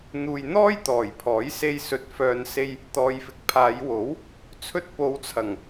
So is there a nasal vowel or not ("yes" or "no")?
no